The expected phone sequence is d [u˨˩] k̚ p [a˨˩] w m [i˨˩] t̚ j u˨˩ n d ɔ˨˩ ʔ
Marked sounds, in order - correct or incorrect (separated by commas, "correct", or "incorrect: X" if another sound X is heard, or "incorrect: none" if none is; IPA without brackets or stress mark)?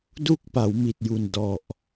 incorrect: u˥˩, incorrect: a˩˦, correct